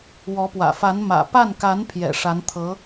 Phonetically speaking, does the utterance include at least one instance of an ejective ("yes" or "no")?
no